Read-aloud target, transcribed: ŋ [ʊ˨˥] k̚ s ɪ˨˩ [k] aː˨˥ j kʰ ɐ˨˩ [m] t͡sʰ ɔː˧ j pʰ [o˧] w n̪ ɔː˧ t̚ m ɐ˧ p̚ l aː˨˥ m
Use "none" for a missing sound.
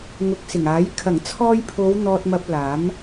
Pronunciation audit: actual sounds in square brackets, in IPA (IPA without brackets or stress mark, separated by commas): ʊ˨˥, ŋ, ŋ, o˨˧